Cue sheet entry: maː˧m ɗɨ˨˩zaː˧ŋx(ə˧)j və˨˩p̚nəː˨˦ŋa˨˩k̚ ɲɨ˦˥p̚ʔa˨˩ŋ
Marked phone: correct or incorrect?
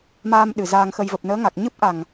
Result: correct